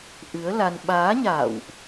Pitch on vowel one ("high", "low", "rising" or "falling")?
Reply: rising